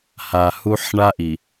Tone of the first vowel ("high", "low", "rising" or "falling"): low